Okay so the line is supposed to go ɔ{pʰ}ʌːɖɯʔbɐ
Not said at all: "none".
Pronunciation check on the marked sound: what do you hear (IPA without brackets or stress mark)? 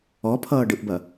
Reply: pʰ